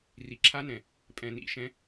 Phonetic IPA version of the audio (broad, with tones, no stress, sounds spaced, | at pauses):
r i˨ ǁʰ a˦ n ɛ̃˨ | pʼ ɛ̃˨ n ḭ˦˨ ʃ ɛ̃˦